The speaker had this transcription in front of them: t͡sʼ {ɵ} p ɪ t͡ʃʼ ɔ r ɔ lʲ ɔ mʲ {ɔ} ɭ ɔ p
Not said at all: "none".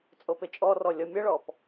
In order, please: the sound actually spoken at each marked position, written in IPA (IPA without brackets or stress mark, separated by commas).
o, ə